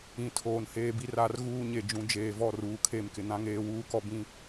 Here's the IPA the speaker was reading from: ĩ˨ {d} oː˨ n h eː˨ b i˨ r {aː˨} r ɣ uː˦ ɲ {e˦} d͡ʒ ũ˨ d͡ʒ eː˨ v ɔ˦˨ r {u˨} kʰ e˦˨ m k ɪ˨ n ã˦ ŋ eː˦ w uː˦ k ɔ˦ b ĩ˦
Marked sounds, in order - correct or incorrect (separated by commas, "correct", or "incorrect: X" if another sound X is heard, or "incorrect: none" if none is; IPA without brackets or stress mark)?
incorrect: tʰ, incorrect: a˨, incorrect: e˨, incorrect: uː˨